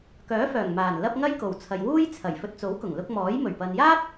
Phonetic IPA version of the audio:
k œː˨˥ f œː˨˩ ŋ m aː˨˩ n l ɐ˧ p̚ ŋ ɐ˥ j k o˨˩ w t͡sʰ ɐ˨ j w uː˥ j t͡sʰ ɐ˨˩ j f ɵ˨ t̚ t͡s o˨˥ w k ʊ˨˩ ŋ l ʊ˧ k̚ m ɔː˨˥ j m ɵ˨˩ ɥ p ɐ˨ n j aː˥ p̚

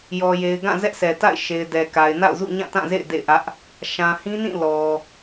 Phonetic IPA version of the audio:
j ɔ˨ j e˨ ɪ̯ ɡ ã˦˨ z ɛ˦ ʔ s ɛ˨ t a̰˦˨ ɪ̯ ʃ e˨ ɪ̯ d ɛ˨ k a˨ ɪ̯ n a̰˦˨ ʊ̯ z ṵ˦˨ ɲ ã˦˨ t ã˦˨ z ḛ˦˨ ɪ̯ d ḛ˦˨ ɪ̯ ʔ ä˦ ʔ | ʃ ã˨ h ĩ˦ n ĩ˦˨ l ɔ˨

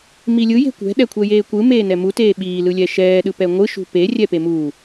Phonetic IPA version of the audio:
m i lʲ ɯ j e̤ kʷ ɛ̤ ɗ ɛ kʷʰ ɛ j eː kʷ ɯ m eː n ɛ m u t eː ɓ iː l ɯ lʲ ɛ ʃ ɛː ɗ ɯ p ɛ ŋʷ ɯ ʃ ṳ p e rʲ ɛ p e m uː

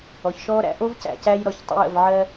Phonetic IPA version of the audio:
ɔ˨ ç ʃ ɔː˦ ɾ æ̰˧ ʔ o˦ v c æ̰˨ c æː˧ j ɾ ɔ˨ ç tˤ ə̰˧ j ə̰˨ v ʕ ɜ˧

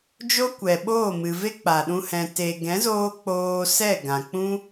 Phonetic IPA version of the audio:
d͡ʒ o˦ kʷ ɛ˨ ɓ oː˦˨ m ɨ˨ v e˦ k͡p a˨ ɗ ũ˧ h ɛ̃˨ t e˨ ɡ ɛ̃˨˦ z oː˧ k͡p oː˧ s ɛ˦˨ ɡ ã˨ k͡p ũ˦

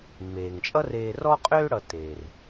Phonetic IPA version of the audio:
mː eː˩ ŋ t͡ʃʼ ʌ˥ r eː˨ r ɔ˦ qʼ øː˦ ɽ ʌ˨ t eː˩ r

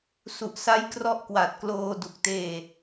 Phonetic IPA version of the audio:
s u˨˩ ʔ s a˦˥ j k r ɔ˦˥ ʔ k w a˨˩ t̚ k l oː˧ d u˨˩ k̚ t eː˧

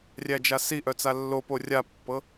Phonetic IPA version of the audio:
rʲ æ d͡ʒ a s i ʔ œ t͡s a lː o p o rʲ a pː ɤ

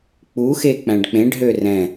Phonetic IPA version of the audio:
k͡p u x e k͡p æ̃ ɖ k͡p ẽ ɖ ɦ ø r ɛ̃

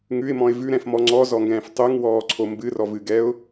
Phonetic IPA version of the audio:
ŋ ʉ ɪ̯ m ɔ̃ ɪ̯ v ʉ ɾ ɛ̃ f m ɔ ŋ͡ǀ ɔ z ɔ ŋ ɡ ɛ̃ː f tˤ ʉ ŋ w ɔː ǀʰ o m b ɨ r ɔ v ɨ ɡ ɛ ʊ̯

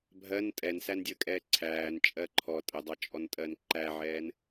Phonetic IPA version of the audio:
bʱ ɜ n tʼ ɛ n s æ n dʲ əː kʼ ɛː ǀʰ æː n t͡ʃʼ ɜ ǃʰ ɔ tʼ ə dˤ ɑ t͡ʃʼ ɔ n tʼ ɜ n ǃ æ ʕ ɛː n

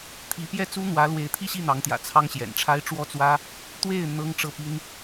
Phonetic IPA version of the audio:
t̪ʰ i˧˥ p j ɛ˥˩ t͡s u˥ n̪ w ä˧˥ l w e˧˥ ɪ̯ t̪ʰ i˥˧ ɕ i˥˩ n̪ ɑ˧˥ ŋ t̪ j ä̰˨˩ t͡sʰ ɑ˥ ŋ ɕ j ɛ̰˨˩ n ʈ͡ʂʰ a˥ ɪ̯ ʈ͡ʂ w ɔ˥ t͡s w ä˥ | t̪ w e˥˩ ɪ̯ n̪ ɤ˥ ŋ ʈ͡ʂ ɤ˥˩ p i˥ n

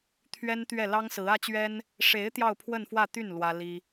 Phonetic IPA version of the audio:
t̪ʰ ɥ ɛ˥ n t̪ ɥ ɛ˥˩ l ɑ˥ ŋ s ɹ̩˧˥ ä˥ t͡ɕ ɥ ɛ˥ n | ʂ e˧˥ ɪ̯ t̪ j ɑ˥˧ ʊ̯ pʰ w ə˥˧ n f w ä˥˧ t̪ y˥˩ n l w ä˥ l i˥

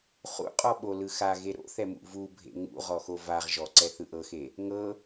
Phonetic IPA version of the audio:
χ ṵ qʼ ɔ ɓ o l ɯ x a ɣ e ɾ o̰ θ ɛ m ṵ v u bʱ ḛ ŋ ṵ ʁ ɔ x o v a ʁ ʒ ɔ ǀ ɛ θ ɯ ʔ ɤ x e | ŋ ɤ

